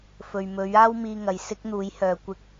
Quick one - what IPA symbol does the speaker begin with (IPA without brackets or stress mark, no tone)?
f